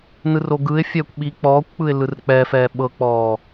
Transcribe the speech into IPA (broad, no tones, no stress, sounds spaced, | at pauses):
n ɯ r o ɡ ɯ ɪ̯ fʲ ɛː kʷ ɓ i k͡p ɔː kʷ k͡p ɯ ɪ̯ l ɯ r k͡p ɛː f ɛː ɓ ɤ k͡p ɔː